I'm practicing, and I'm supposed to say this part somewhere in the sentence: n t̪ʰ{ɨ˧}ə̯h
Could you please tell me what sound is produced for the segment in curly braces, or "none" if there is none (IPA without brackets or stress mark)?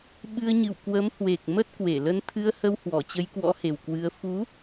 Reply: ɨ˧